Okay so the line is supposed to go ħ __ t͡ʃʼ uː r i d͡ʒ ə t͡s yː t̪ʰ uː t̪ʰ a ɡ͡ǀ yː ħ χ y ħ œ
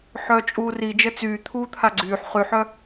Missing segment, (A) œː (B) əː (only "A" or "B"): A